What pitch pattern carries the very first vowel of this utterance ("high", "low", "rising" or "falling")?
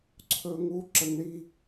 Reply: high